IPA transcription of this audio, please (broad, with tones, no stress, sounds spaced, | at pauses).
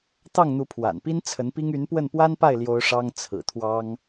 t̪ ɑ˥˩ ŋ n̪ u˧˥ pʰ w a̰˨˩ n p i˥ n t͡sʰ ə˧˥ n p i˥ ŋ y˧˥ n p w ə˥˩ n p w a˥ n p a˥˩ ɪ̯ l j o˥ ʊ̯ ʂ ɑ˥ ŋ t͡sʰ ɹ̩˨˩ t̪ʰ w ɑ˥ ŋ